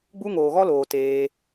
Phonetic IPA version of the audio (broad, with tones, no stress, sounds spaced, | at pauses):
ɡ͡b u˧ ŋ oː˨ ɣ ɔ˧ l oː˨ t eː˧